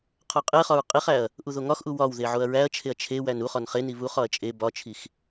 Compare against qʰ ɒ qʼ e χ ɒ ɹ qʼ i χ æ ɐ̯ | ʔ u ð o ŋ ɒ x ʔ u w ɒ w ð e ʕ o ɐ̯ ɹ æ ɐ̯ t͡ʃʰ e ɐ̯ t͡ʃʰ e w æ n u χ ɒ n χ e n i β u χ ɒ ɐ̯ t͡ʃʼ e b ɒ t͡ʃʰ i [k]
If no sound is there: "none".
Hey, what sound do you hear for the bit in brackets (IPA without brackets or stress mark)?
x